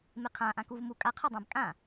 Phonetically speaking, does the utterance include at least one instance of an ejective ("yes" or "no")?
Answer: yes